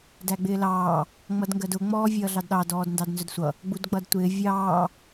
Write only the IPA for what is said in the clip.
dæɡ͡bɪːlɑː | ŋ͡mʌdŋɡɜdʊ ŋ͡mɔːvʲʌːɮɑdɗɑ dɔːdndɑdnzʊdsʷʌ | ɡ͡budɡ͡bʌdtʷɪː vʲɑː

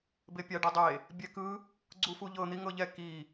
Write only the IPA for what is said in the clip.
bepʲaɖɛdˤe | bʲɛkɯ | ɡ͡ǀufuʎɤ n̪iŋɤʎɛ ki

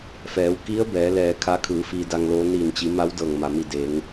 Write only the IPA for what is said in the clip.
fɛː˩˧wki˧˥ə̯ bɛː˩˧lɛː˧˩kʰa˧˥kʰɯː˩˧ fiː˧da˧ŋloː˧˥ niː˧˩nt͡ɕi˩˧ ma˧˥w dɤː˧˩ŋma˩mi˧˩ deː˩˧ŋ

